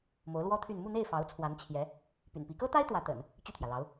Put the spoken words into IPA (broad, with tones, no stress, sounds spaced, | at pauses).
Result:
m o˧˥ ʊ̯ l w ɔ˥ t̪ʰ y˥˧ n m u˥˧ n̪ e˥˩ ɪ̯ f ɑ˧˥ ʊ̯ t͡sʰ w a˧˥ n t͡ɕʰ j ɛ˧˥ | p y̰˨˩ n p i˧˥ k ɤ˥ t̪ a˥ ɪ̯ t̪ w ä˧˥ t̪ ə̰˨˩˦ n | t͡ɕ y˥˩ t̪ʰ j ä˩ l ɑ˧˥ ʊ̯